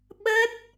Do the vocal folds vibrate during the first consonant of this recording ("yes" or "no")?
yes